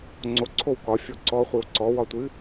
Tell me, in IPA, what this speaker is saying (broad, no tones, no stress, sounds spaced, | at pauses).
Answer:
ŋ͡ǀ o ǀʰ o w k ɒ fʲ o ǀ ɔ χʷ i w ǀ ɔ w ɒ tʷ ɨ